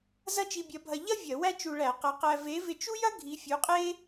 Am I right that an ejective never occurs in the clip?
no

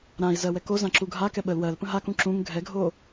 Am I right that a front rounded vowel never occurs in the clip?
yes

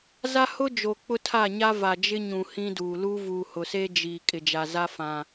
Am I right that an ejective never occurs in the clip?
no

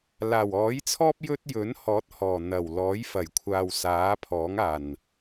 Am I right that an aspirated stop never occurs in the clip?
no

